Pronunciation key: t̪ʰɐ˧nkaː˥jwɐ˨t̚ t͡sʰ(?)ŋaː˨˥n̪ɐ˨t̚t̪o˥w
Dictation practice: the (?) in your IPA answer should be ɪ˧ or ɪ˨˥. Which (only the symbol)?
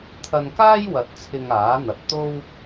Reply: ɪ˧